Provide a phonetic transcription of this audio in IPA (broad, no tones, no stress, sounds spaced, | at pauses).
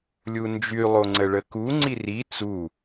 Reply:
lʲ u n d͡ʒ y lˠ o ŋ͡ǀ ə ɭ ə k u ŋ͡ǀ i r i t͡s u